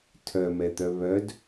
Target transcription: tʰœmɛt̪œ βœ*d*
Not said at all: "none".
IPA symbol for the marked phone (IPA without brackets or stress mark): d